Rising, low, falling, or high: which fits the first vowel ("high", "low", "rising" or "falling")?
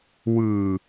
low